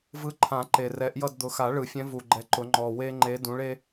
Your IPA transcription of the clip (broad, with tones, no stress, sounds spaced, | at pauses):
v ɯ˨˦ ǃʰ ã˨˩˦ ǃ e˨ r ɛ˨˦ ʔ j ʌ˦˨ d d̪ ʊ˨˦ x a˨˩˦ ɭ ɯ˨˩˦ fʲ ɛ̃˨˦ v u˨ ɡ͡ǃ ɛ˨˦ ǃ ʊ˨˦ ŋ͡ǃ ɔ˨ w e˦ ŋ͡ǃ e˨˦ d ũ˨˦ ɭ e˦